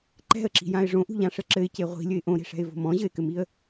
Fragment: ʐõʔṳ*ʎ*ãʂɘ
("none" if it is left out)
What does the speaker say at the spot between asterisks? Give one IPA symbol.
ʎ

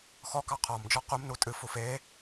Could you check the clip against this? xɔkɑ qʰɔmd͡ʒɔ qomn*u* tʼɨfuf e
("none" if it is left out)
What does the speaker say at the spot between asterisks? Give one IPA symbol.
u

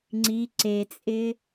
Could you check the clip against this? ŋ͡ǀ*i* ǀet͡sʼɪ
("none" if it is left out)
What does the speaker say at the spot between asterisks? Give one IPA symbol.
i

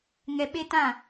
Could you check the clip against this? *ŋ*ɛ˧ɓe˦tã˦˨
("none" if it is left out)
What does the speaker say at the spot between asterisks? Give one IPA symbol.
ŋ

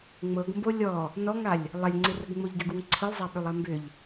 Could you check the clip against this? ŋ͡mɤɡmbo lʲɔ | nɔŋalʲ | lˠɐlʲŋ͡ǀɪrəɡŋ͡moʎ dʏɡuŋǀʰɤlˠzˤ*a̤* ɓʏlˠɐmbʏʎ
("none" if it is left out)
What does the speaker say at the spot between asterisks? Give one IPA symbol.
a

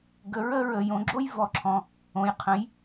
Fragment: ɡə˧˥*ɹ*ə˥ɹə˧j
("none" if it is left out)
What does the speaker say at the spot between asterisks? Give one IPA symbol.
ɹ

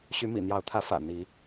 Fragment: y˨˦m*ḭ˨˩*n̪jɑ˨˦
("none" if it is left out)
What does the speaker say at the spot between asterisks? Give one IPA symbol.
ḭ˨˩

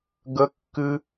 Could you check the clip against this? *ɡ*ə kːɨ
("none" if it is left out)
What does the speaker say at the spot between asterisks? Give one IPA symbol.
ɡ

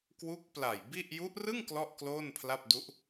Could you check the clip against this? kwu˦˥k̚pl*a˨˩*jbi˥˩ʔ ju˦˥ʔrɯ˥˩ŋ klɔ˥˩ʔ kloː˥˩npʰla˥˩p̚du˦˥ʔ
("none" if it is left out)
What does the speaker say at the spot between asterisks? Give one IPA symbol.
a˨˩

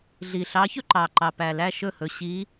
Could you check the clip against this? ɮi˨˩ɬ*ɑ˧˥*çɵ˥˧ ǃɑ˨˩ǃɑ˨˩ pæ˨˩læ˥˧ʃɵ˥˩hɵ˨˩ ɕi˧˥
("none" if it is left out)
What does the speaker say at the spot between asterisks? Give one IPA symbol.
ɑ˧˥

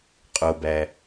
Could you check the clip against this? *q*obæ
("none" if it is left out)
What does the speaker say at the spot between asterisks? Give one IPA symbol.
qʼ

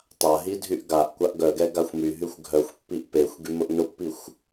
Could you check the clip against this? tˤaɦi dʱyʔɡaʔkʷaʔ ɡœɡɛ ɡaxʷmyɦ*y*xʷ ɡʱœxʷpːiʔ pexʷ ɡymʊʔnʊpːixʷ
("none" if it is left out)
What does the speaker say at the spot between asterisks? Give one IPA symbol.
y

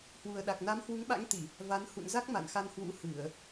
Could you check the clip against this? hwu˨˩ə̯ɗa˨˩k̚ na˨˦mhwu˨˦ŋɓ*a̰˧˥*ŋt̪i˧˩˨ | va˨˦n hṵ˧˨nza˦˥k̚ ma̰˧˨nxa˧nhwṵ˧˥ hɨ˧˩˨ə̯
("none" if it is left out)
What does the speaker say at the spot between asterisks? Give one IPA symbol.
a̰˧˥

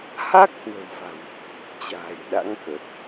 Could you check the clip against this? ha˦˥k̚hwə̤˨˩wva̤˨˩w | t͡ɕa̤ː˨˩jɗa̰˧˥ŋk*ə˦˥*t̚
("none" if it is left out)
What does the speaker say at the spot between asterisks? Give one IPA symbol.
ə˨˩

